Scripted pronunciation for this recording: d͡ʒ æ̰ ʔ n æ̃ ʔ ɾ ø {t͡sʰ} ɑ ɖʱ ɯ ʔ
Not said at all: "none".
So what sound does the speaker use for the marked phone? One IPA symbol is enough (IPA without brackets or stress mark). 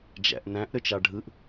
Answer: t͡ʃ